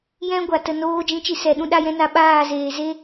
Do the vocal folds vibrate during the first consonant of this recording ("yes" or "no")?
yes